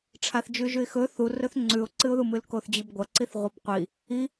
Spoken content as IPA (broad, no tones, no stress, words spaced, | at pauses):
ʈ͡ʂʰaθd͡ʒʉʒʉɪ̯xɵ θurɵθ ŋ͡ǀʉʊ̯ǀɨʊ̯ðumɨl koθd͡ʑibɡʷɐǀiθ ʁʷɨbqʷi | i